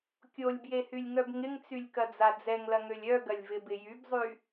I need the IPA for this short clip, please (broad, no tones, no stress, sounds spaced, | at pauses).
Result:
kʲ o lʲ b j e h y lʲ ŋ œ b ŋ ɪ ŋ t͡s y lʲ k ɐ d͡z a d͡z ɛ ŋ l ɐ ŋ ø lʲ œ ɡ ɐ lʲ v ɪ b ɪ j y b zˤ y